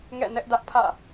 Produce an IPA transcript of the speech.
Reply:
ŋ ɛ̰˦˨ n ɛ˦ ʔ d ä˦ ʔ pʰ ä̰˦˨

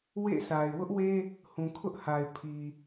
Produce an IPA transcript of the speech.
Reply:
w ḛ˦˨ s a˨ ɪ̯ w ʊ˦ ʔ w e˦ | h ũ˨ kʰ ʊ˦ ʔ h a˨ ɪ̯ pʰ i˨

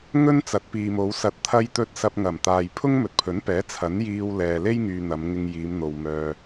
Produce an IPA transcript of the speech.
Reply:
ŋ ɵ˥ n t͡s ɐ˨˥ t̚ p iː˨ m o˨˧ w s ɐ˨˥ t̚ t̪ʰ ɐ˧ j t̪ ɵ˧ t̚ s ɐ˧ p̚ ŋ ɐ˨˩ m t̪ aː˨ j pʰ ʊ˥ ŋ m ɵ˨ t̚ pʰ ɵ˨˥ n p ɛː˨˥ t͡sʰ ɐ˨˥ n j iː˧ w l ɛː˨ l e˥ j ŋ yː˨ n̪ ɐ˨˧ m ŋ ɪ˧ ŋ j iː˨˧ m n̪ o˨ w m œː˨

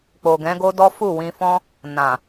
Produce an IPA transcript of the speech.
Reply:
k͡p o˨ ɡ ɛ̃˨˦ ɡ o˦ d ɔ˦ f u˦˨ w ĩ˧ f ɔ̃˦ | n ã˨

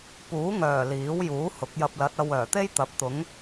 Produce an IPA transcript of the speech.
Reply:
p uː˨˥ ŋ œː˨˩ l iː˨˥ w j uː˨˥ h ʊ˨˥ k̚ j ɐ˧ p̚ l ɐ˨˥ t̚ ɐ˧ w œː˨˩ t̪ e˥ j t̪ ɐ˨˥ p̚ t̪ ʊ˨˥ ŋ

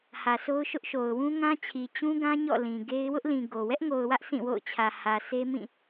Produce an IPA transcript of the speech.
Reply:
h ä˨ sʰ o˦ ʊ̯ ʃ ʊ˦ ʔ ʃ o˨ ʊ̯ w ũ˦ ŋ ã˦ t͡ɕʰ i˨ t͡ɕ ũ˦ ɡ ã˦ ɲ ɔ̰˦˨ l ĩ˨ ɡ e˦ ɪ̯ w ʊ˦ ʔ l ĩ˨ ɡ o˨ w ɛ˦ ʔ ŋ o˨ ʊ̯ w ä˦ ʔ s ĩ˦˨ w o̰˦˨ ʊ̯ t͡ɕʰ ä˨ h ä˨ sʰ e˦ m ĩ˦˨

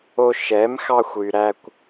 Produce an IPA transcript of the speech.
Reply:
o˧ ʃ ɛ˨˦ m x ɑ˧ xʷ y˨ ɾ æ˧ kʷ

